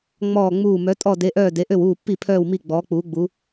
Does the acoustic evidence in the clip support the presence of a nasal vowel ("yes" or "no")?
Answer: no